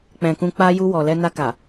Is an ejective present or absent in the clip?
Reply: absent